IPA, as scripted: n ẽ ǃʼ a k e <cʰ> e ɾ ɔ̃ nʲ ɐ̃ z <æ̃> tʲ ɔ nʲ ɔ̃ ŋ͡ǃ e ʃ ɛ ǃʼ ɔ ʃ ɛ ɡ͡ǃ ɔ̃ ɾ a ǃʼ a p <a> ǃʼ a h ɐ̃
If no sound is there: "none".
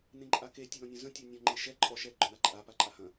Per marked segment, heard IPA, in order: tʲ, ə̃, a

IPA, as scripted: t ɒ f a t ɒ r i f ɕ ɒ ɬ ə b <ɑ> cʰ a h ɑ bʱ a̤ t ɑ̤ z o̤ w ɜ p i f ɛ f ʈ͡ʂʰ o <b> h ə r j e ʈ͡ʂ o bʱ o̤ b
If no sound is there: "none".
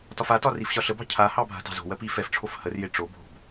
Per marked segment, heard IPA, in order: ɑ̤, f

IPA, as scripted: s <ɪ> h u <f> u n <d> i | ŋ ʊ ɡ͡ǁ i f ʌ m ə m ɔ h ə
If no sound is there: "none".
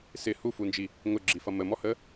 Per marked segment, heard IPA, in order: ɪ, f, d͡ʒ

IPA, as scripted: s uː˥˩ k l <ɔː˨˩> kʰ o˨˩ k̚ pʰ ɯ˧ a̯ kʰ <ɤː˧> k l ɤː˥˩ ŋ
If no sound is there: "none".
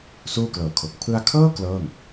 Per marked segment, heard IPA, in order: ɤː˨˩, ɤː˥˩

